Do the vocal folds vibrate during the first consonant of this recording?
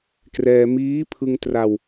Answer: no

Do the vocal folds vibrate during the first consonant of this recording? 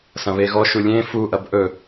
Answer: no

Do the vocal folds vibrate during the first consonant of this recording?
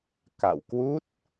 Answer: no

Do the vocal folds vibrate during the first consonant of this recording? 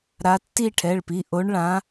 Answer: yes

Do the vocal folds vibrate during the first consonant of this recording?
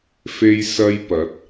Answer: no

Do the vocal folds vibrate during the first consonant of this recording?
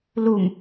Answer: yes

